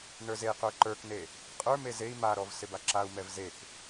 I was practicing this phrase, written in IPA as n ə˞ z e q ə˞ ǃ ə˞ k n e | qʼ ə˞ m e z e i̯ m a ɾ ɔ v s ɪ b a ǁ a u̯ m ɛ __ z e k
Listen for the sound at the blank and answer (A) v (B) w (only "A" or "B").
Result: A